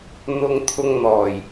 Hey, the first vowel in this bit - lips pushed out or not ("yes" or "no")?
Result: yes